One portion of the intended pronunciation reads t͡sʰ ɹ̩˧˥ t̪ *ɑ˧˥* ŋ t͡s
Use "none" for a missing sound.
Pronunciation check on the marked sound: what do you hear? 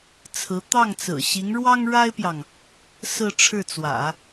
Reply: ɑ˥˩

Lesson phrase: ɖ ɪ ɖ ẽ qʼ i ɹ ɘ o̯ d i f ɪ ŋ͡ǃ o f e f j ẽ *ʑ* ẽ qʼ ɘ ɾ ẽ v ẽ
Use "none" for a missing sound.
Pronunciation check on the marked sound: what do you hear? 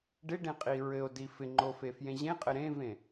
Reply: ʑ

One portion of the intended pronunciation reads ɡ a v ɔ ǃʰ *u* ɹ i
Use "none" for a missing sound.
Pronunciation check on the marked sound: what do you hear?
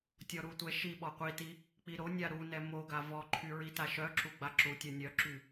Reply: y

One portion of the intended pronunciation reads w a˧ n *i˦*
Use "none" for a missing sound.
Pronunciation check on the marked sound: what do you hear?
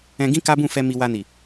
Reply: i˨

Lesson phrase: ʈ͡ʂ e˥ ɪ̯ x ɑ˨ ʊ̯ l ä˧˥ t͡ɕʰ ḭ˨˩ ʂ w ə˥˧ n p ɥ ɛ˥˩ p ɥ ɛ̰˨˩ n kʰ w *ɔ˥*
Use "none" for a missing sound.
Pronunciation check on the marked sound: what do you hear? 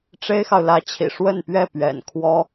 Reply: ɔ˥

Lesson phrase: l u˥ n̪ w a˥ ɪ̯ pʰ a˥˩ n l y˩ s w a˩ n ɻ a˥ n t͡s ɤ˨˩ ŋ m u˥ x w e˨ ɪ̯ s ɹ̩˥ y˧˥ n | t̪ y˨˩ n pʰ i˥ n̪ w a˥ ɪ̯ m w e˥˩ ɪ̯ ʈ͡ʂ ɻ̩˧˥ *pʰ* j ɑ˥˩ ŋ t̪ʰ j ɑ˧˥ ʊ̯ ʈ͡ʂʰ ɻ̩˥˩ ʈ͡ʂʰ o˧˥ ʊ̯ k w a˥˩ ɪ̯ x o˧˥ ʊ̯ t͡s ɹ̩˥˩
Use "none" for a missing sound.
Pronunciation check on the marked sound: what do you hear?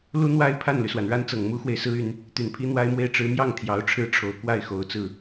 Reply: m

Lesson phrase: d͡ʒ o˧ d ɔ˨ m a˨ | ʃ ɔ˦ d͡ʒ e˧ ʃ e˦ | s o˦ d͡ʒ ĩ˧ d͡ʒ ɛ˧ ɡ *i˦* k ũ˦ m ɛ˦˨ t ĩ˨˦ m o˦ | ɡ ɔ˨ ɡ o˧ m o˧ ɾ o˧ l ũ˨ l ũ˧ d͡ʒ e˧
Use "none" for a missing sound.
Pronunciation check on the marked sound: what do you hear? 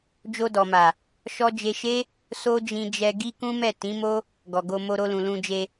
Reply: i˦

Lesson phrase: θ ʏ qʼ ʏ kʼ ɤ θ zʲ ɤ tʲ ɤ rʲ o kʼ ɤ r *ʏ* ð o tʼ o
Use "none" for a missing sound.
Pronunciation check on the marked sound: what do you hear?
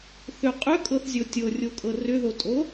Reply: ʏ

